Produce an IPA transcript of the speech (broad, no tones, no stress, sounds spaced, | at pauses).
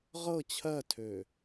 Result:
ʁ ɤ t͡ɕʰ ɜ tʰ ø